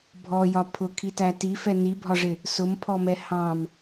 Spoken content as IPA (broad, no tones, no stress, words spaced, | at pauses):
bʱɔjɒ pʰʊkʰitæ tifɛ nibʱɒʐɪ | sʊmpʰɔmɛ hɑ̃m